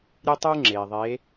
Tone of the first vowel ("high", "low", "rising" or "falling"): high